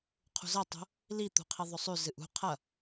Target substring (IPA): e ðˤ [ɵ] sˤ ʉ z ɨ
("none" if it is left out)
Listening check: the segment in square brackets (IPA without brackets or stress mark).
ɵ